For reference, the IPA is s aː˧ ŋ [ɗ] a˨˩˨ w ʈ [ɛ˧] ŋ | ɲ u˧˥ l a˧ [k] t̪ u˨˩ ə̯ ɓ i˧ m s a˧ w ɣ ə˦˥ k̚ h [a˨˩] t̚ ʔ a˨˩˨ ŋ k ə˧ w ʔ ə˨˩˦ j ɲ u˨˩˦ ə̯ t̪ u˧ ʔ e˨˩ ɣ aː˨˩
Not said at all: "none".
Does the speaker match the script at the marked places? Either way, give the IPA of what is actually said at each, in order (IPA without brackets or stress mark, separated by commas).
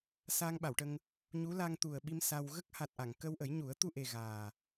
ɓ, ə˧, ŋ, a˨˩